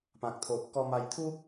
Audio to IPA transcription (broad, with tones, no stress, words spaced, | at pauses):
pã˦k̚t̪ʰo˦ʔ kɔ˧ma˧jt̪ʰu˦